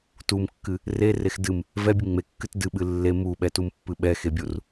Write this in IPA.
tumkːɨ | rerex dɨm | vɛbʲɨ ŋ͡mekːɨt dɨɓɨ lːe muɓɛtumpːɨ ɓɛxebʲur

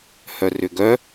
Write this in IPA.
hœrʏɡœ

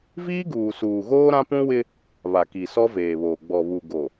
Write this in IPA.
viː˦ɡuː˨suː˨ɣoː˦ ɾã˦pũ˦wɪ˦ | βa˨ki˨ sɔ˦veː˨βoː˨ ɡ͡bɔ˨βu˨ ɡo˨

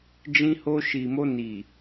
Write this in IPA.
d͡ʒĩ˧ho˧ʃi˨mo˧ ni˨

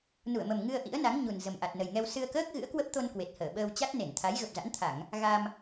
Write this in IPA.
nu˧˩ə̯mə˨˩m ŋɨ˧ə̯ ʔḭ˧˥ə̯na˨˦ŋ ɲu˨˩n zə˨˩mʔa˨˩t̚nə˨˩jŋɛ˧w sɨ˧ə̯kəː˦˥k̚ ɣɨ̰˧˥ə̯kwə˦˥p̚t̪o˧n kwe˨˩t̚həː˧˩ɓəː˧w t͡ɕa˦˥t̚ne˧˩nt̪ʰa˨˦j ɣə˨˩p̚za̰˧˥nt̪ʰa˧˩˨ŋ | ɣa˧m

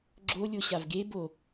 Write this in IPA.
ɡ͡ǁolʲo ɕavɡe bo

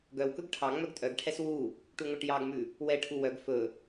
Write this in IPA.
ɡœwkɵɡ ʈʰɑ ŋ͡mœɡtʼœɡʈʰɛs wu | ʈuŋʷɛʈjɑɡmʉ | wɛʈʰu wœɡ fɵ

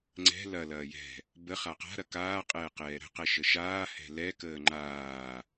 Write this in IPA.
ŋ͡ǀɛ̤ lɐ lɐːjɛ̤ | bə χaqa̤ɾɐ kaːqʼɛː qɛːɾə̤qɛʃə ʃaː hɛ̤lɛkəː ŋ͡ǃaː

